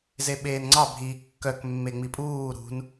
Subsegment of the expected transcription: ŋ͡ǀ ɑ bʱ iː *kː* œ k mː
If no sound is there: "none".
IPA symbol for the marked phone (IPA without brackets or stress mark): kː